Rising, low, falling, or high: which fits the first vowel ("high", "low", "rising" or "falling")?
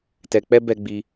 low